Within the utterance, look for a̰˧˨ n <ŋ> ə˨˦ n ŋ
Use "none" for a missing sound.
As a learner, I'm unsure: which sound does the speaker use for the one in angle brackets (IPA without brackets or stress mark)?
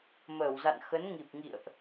x